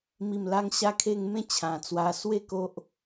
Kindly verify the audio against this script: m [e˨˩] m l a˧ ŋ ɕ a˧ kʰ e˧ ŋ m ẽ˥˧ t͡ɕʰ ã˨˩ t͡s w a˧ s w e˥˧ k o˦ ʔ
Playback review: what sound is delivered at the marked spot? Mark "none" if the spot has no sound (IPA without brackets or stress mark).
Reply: i˨˩